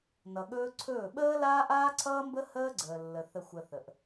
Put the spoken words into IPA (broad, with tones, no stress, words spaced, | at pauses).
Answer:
nʌ˨ɠɵː˦ǀʰɵː˦˨ ɓəː˦ laː˦ʔaː˦ǀʰʌː˦mbə˦ həː˦ɡ͡ǀəː˨lːə˨ θə˨xʷə˨ θə˨ʔ